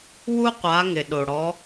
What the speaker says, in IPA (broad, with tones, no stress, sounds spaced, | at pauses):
w u˥ qʷ a˨˦ ŋ ɪ˩ ɗ o˩ ɽ ɔ˨˦